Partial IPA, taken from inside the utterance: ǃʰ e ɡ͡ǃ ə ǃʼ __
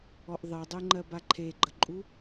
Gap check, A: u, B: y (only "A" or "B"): A